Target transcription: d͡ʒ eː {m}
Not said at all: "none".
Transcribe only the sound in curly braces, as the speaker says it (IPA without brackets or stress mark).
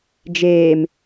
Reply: m